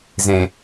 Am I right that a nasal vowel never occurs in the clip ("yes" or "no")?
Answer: no